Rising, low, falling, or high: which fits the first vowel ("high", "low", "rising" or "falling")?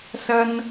high